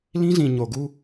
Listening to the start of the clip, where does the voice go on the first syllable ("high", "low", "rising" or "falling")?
high